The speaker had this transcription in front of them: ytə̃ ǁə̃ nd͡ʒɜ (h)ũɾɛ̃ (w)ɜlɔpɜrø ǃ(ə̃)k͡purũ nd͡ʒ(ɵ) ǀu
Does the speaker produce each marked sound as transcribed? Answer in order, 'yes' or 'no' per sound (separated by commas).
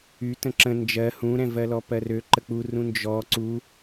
yes, no, no, no